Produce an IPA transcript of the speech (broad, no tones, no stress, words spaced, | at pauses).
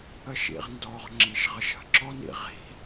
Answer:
əʃḭʁndɔʁ ŋ͡ǁiʃʁəʃə̤ ǁɔnḭʁi̤